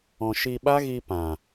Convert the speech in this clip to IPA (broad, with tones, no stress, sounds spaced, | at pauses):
ɔ̃˧ ʃ i˧ ɓ a˦ ɣ i˧ p ã˨